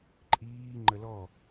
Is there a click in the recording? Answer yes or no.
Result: yes